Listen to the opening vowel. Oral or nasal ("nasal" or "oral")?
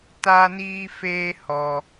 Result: oral